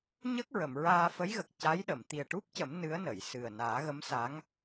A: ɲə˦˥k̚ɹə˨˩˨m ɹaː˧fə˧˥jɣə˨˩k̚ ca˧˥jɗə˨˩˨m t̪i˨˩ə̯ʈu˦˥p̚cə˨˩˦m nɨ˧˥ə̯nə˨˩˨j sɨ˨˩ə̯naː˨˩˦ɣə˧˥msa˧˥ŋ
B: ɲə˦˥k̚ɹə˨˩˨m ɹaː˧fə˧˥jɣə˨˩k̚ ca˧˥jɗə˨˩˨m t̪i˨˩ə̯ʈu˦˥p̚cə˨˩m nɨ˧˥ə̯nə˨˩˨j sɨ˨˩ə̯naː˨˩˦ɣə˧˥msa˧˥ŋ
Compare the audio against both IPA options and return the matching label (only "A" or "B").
A